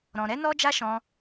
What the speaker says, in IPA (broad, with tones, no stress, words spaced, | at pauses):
ɾɔ̃˧ ɾɛ˦nɔ˦d͡ʒa˦ʃɔ̃˧